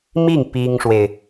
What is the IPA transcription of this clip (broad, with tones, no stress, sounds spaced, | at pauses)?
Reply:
m i˥˩ ŋ p i˥ ŋ ʂ w e˨ ɪ̯